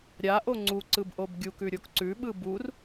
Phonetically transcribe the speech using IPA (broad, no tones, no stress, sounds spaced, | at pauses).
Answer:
ɾʲ a ʔ o ŋ͡ǀ u ǀ ɯ b ʔ o b ɡʲ u k ʉ ɾʲ o k ǀ ʉ ɓ ɯ b u r